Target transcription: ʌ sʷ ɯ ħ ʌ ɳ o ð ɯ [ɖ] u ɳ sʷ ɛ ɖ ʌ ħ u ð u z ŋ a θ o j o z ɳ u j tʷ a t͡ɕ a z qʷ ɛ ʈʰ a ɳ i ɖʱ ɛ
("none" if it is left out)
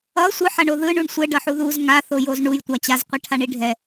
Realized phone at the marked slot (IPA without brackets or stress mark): ɳ